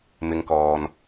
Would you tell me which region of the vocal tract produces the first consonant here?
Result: lips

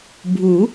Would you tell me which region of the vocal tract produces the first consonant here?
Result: lips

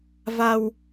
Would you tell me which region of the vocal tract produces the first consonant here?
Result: lips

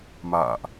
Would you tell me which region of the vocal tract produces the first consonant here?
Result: lips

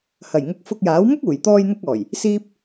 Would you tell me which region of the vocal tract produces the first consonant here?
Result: throat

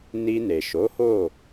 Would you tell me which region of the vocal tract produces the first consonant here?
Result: tongue tip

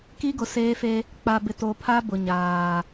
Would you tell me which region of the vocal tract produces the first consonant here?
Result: velum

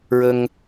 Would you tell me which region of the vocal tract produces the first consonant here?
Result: tongue tip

